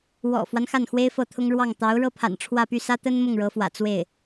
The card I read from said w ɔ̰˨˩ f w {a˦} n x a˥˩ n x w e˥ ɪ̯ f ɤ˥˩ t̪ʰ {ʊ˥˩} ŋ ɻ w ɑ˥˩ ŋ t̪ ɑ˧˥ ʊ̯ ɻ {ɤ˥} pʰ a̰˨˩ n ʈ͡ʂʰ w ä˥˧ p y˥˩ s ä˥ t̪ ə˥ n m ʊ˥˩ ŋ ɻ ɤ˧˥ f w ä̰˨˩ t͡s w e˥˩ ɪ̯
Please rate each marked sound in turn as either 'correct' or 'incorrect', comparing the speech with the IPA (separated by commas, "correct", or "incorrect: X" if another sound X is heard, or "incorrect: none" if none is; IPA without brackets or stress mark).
correct, incorrect: ʊ˥, correct